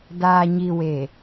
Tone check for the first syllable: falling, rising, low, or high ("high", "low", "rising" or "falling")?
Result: low